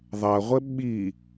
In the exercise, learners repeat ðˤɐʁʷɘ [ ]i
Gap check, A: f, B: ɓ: B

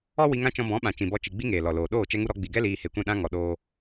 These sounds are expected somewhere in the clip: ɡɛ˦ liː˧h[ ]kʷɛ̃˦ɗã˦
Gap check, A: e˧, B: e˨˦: A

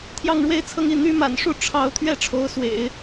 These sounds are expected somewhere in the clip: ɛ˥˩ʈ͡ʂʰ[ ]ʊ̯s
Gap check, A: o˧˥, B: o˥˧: A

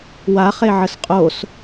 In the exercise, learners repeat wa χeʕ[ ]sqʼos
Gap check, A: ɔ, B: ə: B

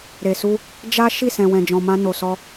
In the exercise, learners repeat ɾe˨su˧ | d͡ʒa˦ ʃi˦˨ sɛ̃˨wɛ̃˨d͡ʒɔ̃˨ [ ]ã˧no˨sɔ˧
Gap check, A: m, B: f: A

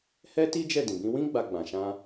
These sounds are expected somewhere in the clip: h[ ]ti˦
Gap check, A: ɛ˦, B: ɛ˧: A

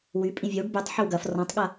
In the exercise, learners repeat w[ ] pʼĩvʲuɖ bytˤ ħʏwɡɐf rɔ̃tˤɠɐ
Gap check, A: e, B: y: B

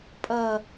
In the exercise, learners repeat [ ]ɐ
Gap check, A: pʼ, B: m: A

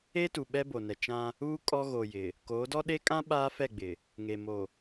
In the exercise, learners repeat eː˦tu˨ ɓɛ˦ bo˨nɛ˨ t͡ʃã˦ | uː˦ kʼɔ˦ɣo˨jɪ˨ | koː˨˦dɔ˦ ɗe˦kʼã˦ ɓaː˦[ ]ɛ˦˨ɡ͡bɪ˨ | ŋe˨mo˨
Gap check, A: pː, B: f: B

